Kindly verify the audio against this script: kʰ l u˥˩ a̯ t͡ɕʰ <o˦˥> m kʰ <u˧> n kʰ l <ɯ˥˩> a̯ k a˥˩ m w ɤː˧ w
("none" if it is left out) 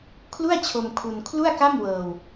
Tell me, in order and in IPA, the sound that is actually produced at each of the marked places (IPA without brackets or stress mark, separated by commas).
o˧, u˧, u˥˩